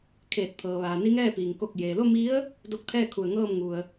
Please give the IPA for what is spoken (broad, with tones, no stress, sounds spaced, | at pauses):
kʰ eː˧˩ t̚ t̪ʰ ɤː˩ ʋ aː˩ n i˧˥ ŋ ɛː˥˨ p iː˩ ŋ k o˧˩ k̚ j eː˩ l o˥˨ m i˧˥ ə̯ | d o˧˥ k̚ t̪ʰ ɛː˥˨ kʰ u˧˩ ə̯ ŋ ɤː˥˨ m ŋ u˩ ə̯